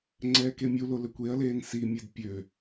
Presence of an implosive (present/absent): absent